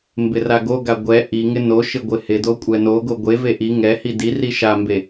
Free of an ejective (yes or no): no